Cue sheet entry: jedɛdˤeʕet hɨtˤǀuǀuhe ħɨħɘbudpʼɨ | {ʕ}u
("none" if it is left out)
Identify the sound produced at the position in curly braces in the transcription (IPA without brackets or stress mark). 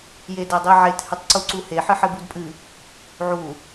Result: ʕ